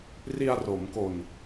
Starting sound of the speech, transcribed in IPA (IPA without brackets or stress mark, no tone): r